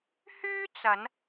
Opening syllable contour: high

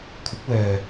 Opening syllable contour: rising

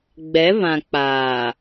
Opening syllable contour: rising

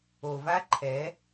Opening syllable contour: low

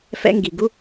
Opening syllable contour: high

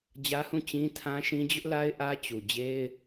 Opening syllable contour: high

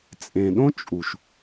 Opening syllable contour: low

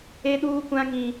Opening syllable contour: high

